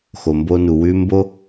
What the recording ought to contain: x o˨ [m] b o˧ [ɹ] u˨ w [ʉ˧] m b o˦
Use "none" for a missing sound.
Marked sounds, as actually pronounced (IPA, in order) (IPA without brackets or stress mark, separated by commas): m, n, ʉ˧